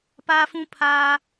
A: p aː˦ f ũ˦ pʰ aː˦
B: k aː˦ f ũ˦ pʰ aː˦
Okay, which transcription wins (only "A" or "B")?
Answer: A